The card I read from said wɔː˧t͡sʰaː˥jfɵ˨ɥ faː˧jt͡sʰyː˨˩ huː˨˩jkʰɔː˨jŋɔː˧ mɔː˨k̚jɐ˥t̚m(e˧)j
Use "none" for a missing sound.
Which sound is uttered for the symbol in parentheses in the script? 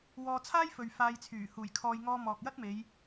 e˨˧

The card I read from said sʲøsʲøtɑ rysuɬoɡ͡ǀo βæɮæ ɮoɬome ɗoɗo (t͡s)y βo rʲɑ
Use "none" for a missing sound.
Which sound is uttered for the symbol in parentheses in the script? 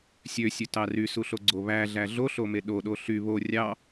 ɬ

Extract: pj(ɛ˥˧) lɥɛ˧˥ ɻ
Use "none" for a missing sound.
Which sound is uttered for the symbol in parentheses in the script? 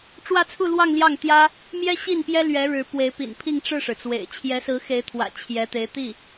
ɛ˥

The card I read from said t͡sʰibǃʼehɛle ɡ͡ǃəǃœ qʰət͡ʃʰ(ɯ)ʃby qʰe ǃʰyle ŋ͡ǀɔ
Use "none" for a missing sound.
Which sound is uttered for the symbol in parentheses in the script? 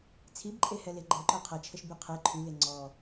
ə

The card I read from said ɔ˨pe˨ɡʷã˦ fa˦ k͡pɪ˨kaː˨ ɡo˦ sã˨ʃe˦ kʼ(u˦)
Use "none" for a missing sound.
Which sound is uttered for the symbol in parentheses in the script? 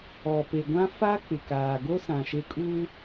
uː˦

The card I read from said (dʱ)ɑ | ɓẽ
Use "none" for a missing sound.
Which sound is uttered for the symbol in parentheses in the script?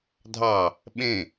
dʱ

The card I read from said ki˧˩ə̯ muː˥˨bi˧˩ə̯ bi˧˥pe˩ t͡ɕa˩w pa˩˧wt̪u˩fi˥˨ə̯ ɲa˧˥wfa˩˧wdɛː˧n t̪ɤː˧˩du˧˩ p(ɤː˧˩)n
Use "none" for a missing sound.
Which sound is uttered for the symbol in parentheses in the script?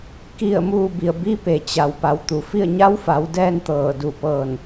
ɤː˧˩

